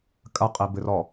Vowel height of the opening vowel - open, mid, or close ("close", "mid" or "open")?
open